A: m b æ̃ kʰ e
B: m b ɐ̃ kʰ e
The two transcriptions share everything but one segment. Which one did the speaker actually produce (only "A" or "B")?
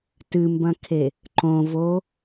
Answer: B